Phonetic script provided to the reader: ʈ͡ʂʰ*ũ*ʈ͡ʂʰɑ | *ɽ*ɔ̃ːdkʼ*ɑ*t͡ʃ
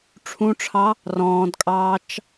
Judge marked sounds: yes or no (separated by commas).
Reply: yes, no, no